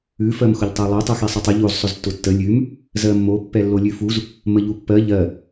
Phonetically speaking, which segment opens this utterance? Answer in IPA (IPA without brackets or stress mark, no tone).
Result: ʉ